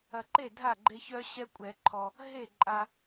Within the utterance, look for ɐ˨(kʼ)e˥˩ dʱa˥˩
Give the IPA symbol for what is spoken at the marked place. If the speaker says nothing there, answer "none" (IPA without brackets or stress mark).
ǃ